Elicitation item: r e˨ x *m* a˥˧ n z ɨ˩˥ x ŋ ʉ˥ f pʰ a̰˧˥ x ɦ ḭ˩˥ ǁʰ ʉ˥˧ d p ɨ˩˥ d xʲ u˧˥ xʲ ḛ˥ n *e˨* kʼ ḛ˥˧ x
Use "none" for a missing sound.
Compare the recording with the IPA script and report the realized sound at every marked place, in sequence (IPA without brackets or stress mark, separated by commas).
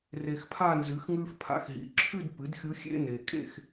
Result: pʰ, e˨